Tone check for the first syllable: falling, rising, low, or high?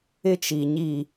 high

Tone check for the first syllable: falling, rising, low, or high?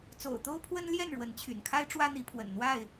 low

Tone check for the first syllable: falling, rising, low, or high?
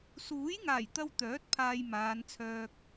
rising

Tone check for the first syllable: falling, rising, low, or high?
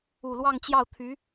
low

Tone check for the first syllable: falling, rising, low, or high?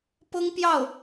high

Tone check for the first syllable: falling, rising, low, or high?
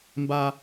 low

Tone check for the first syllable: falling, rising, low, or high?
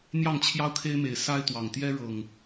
falling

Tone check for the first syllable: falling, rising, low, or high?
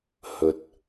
low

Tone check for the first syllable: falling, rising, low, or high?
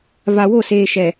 low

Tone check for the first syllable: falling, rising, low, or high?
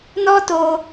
high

